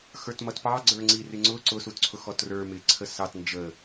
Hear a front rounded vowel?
no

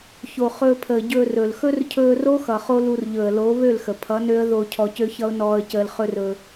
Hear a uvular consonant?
yes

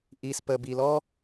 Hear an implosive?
no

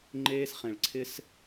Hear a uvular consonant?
yes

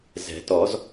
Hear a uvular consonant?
no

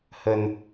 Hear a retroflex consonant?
no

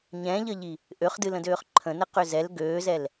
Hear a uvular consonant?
yes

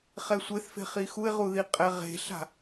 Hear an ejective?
yes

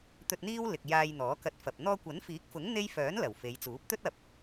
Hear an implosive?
no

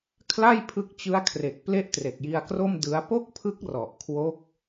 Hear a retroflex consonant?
no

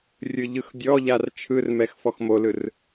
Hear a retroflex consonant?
no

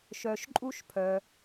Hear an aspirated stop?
yes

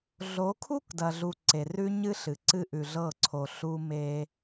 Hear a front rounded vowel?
no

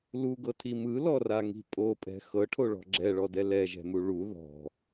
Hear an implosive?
no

